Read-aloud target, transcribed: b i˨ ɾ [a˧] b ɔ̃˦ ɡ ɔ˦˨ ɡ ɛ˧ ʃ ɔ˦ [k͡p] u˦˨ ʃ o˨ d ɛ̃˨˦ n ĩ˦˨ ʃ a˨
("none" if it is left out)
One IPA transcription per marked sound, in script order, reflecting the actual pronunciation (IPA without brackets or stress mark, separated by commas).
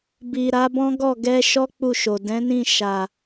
a˨˦, k͡p